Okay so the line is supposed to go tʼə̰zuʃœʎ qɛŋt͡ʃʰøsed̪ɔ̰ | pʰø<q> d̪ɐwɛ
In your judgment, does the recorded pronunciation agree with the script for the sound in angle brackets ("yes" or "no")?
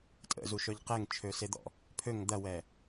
no